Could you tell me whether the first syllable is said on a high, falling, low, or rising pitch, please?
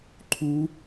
high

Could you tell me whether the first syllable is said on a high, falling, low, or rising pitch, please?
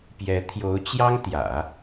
rising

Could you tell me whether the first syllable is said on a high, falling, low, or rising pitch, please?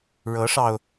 rising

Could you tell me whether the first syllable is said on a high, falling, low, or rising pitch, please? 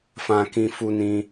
high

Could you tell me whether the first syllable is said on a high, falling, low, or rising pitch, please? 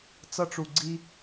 high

